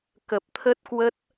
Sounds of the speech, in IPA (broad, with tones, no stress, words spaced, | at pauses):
kə˨˩p̚t̪ʰə˦˥t̚kwə˦˥t̚